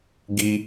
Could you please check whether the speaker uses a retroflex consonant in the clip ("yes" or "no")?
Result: no